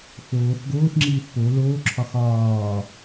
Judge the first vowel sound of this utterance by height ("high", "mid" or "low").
mid